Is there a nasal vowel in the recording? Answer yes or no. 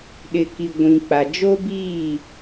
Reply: yes